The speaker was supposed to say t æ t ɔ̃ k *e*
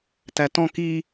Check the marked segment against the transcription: incorrect: i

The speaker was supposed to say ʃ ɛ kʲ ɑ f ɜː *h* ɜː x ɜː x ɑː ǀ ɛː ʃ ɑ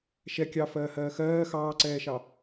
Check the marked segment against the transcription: correct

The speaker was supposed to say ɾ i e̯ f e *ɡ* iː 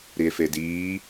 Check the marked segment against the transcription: incorrect: d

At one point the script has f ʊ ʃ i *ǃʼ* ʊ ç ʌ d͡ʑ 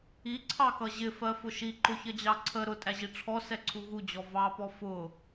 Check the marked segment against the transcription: incorrect: ǃ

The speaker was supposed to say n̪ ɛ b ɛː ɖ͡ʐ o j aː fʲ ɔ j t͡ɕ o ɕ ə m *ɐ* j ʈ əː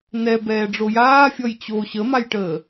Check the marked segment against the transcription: incorrect: a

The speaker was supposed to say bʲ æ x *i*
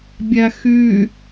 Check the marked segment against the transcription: incorrect: y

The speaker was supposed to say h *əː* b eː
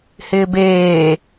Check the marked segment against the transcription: incorrect: ɪː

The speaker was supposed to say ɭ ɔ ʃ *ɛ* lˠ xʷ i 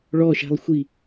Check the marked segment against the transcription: incorrect: ɛ̤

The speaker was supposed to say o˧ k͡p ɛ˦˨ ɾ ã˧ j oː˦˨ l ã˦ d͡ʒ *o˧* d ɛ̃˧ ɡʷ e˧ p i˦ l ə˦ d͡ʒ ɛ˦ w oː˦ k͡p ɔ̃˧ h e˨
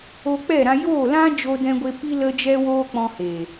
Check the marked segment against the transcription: correct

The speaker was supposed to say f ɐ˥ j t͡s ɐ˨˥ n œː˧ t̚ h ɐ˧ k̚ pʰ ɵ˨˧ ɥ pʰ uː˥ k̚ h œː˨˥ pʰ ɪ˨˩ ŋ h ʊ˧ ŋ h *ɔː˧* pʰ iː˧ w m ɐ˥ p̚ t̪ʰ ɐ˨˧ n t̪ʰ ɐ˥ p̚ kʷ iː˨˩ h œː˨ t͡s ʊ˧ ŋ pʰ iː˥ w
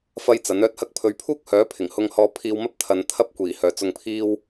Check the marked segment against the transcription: correct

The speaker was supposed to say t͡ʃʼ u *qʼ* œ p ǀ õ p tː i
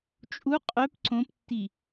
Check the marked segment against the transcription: correct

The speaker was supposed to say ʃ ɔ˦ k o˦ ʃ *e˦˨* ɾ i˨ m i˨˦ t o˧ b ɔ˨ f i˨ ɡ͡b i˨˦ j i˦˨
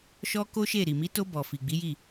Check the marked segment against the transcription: correct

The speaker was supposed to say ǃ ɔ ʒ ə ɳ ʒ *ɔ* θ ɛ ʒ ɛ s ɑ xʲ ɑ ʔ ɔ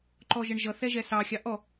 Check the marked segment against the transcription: incorrect: ʌ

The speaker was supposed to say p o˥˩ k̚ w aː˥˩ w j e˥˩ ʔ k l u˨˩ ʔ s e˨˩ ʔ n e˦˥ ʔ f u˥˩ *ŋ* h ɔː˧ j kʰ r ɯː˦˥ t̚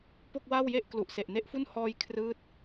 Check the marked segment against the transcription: incorrect: n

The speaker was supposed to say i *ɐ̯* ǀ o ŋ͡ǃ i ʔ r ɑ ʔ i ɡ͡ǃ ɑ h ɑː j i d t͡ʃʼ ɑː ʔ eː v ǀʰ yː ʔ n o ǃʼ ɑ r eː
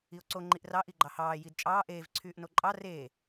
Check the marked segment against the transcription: incorrect: o̯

